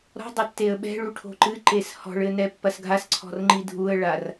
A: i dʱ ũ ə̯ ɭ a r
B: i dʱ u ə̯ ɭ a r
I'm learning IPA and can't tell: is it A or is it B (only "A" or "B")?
B